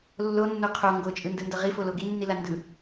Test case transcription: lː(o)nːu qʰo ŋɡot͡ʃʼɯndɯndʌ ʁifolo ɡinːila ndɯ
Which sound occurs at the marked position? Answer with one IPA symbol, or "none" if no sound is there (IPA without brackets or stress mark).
o